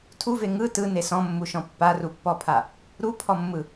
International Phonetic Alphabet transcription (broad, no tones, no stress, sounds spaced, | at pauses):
tʰ u v e ŋ ɯ t ɯ n e s ɔ̃ mː u ʃ ɔ̃ pː a r u pː ɔ pʰ a | ɾ u pʰ ɔ mː ɯ